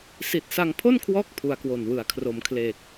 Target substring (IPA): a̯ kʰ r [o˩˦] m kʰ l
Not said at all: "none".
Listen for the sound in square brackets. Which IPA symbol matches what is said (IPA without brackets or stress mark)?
o˩˦